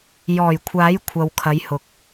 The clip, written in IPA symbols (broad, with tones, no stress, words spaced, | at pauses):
jɔː˨˩jkʷʰaː˨˥j kʷʰɐ˨w kʰɐ˨˧jhʊ˨˥k̚